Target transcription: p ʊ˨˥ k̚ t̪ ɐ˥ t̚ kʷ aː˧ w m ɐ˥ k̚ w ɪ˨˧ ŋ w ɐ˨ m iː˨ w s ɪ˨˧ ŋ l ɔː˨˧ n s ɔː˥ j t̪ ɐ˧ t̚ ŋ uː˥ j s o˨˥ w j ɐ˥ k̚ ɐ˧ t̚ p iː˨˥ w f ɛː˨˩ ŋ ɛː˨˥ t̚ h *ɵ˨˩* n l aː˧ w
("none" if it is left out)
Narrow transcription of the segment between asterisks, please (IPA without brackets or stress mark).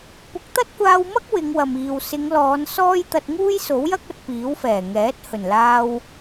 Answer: ɵ˨˩